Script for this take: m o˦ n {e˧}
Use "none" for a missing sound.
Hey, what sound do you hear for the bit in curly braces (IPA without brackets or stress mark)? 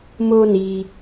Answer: i˧